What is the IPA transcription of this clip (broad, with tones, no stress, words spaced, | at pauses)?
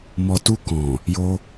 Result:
mɔ˨tu˧kɔ̃˨ | jo˧